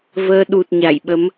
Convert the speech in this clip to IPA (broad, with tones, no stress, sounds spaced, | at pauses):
v əː˧ ɗ u˨˩ t̚ ɲ a˧˩ j ɓ ə˨˦ m